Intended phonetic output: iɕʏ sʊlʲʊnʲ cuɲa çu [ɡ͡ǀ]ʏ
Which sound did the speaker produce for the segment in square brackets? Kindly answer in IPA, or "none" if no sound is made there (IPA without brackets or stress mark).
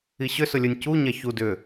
d